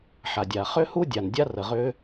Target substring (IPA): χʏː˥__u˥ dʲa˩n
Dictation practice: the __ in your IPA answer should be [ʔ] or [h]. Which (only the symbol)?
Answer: h